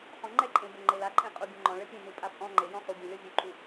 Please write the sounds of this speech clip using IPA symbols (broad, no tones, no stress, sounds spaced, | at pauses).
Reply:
χ ɔ̃ ŋ͡ǃ ɛ ǃʼ ẽ b o ŋ͡ǃ e l a ǃʼ ẽ qʼ u bʲ õ ŋ͡ǃ ɔ̃ ɭ ɘ pʲ ẽ n u pʼ a pʼ ɔ̃ ŋ͡ǃ e j ɔ̃ χ u bʲ ẽ lʲ ɔ vʲ u ǃʼ u